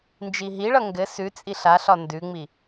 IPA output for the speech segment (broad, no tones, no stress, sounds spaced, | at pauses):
n d͡ʒ i ɦ i ɭ ʌ ŋ ɡ ɘ s ʉ t͡sʼ i ɬ a ɬ ɒ n d ʉ ŋ͡m i